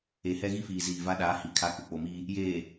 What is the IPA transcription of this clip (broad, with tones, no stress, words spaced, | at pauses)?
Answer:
e˨hɛ˦ɣi˦fiː˨ ziː˨va˦ɗaː˨˦hi˨ kʰa˦ ku˨k͡po˨miː˦ | jeː˨